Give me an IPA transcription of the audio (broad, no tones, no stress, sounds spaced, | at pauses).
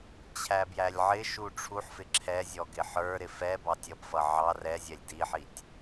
t͡ɕʰ æ b j æ lʲ ʕ ɪ ʃ u ʈ͡ʂʰ u ħ f ɪ ǁʰ ɛ zʲ ɔ ɡ ɪ ħ ə˞ ɾ ɪ f ɛ b ɑ tʲ ʌ b f ʌ ʕ ɑ r ɛ zʲ ɛ lʲ d i ħ i tʲ